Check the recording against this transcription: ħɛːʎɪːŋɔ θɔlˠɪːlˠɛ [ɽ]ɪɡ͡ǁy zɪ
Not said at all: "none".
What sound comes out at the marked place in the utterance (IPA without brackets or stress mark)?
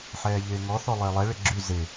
ɭ